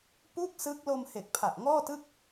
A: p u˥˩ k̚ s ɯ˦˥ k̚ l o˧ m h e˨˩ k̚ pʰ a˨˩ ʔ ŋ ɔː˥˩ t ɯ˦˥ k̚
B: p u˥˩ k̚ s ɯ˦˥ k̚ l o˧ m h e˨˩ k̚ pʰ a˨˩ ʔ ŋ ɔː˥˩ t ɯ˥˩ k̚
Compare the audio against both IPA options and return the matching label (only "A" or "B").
B